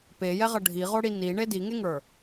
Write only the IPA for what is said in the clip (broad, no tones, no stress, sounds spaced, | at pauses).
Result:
p e j ɛ ʁ ʌ ɖʱ i ʁ o ɽ i n i ɳ e d i ŋ e ŋ ə˞